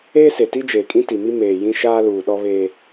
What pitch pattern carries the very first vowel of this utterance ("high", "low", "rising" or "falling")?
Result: high